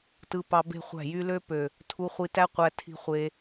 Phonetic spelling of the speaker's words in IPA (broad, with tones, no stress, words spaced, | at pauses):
tɯ˧pɑ˧ be̤˦χʷæ̤˦˨jy˦ lø˦pø˨ | tʰu˧χʷi˧tæ˦ qʷæ˧tʰi̤˧ χʷe˧